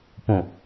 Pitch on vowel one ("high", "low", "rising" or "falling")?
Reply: low